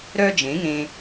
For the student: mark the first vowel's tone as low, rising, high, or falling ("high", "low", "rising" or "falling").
high